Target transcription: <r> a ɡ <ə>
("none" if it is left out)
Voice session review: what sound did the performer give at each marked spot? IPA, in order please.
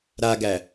ɾ, æ

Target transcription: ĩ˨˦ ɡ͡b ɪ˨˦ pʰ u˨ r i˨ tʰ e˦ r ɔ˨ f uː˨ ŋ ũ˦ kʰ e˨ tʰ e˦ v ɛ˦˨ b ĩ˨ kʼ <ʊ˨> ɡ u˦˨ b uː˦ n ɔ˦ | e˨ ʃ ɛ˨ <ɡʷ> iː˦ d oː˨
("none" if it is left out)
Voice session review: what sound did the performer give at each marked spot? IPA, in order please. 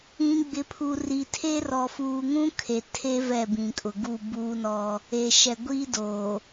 ʊ˨, ɡʷ

